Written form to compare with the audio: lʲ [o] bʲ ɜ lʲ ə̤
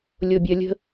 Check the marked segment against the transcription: correct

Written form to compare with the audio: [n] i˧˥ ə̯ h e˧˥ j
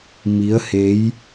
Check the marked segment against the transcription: incorrect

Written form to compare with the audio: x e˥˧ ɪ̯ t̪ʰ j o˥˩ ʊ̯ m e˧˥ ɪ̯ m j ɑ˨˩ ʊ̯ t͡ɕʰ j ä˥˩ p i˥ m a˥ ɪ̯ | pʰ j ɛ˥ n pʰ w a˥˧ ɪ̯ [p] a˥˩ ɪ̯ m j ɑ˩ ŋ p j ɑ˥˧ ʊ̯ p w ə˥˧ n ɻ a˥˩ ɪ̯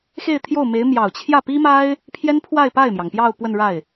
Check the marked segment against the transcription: correct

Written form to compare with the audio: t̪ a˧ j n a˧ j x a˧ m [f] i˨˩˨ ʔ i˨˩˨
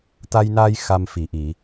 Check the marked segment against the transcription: correct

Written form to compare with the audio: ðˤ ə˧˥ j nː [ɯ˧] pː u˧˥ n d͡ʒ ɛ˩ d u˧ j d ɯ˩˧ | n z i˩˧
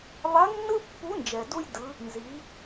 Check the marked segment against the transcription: incorrect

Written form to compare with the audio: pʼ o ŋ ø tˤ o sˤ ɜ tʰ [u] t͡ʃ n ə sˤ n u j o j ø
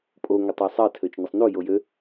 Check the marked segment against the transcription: incorrect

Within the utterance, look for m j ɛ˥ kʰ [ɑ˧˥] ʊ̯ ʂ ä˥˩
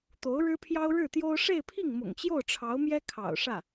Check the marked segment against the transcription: incorrect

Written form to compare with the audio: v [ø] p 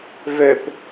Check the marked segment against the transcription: correct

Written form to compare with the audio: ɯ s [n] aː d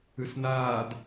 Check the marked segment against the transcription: correct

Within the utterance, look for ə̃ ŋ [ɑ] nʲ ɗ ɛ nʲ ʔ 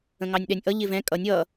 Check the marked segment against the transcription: correct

